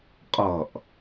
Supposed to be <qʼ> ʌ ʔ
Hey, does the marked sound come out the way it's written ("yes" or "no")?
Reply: yes